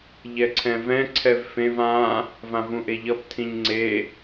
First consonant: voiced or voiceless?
voiced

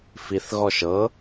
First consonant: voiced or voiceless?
voiceless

